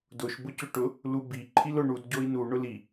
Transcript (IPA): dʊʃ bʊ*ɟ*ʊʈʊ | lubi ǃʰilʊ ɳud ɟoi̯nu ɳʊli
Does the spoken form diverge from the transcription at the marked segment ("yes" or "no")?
yes